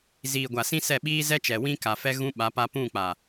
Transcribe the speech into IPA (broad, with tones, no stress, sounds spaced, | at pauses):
z iː˨ ɡʷ a˨ s ĩ˦ s ɛ˦˨ ɓ iː˦ z ɛ˦ t͡ʃ ɛ˨ w ĩ˦ k a˨ f ɛ˦ ɣ ũ˦ ɓ a˨˦ p a˦ p ũ˦˨ k͡p a˨